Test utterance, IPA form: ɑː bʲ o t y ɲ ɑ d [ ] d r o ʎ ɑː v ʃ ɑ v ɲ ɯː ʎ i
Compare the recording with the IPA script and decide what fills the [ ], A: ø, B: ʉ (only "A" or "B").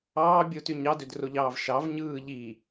A